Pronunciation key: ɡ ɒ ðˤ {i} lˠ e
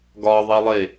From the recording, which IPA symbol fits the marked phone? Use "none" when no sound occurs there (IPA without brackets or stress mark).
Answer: i